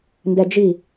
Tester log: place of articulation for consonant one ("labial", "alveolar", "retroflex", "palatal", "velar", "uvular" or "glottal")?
alveolar